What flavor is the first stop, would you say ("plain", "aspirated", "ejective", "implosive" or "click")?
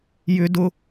plain